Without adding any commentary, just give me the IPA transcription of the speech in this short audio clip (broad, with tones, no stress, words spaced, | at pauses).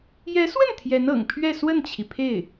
jɛ˧˥swə˥˩n t̪ʰjɛ˧˥nɤ̰˨˩ŋpʰɥɛ˥˧ swə˥˩nt͡ɕʰi˩ pʰe˥˩ɪ̯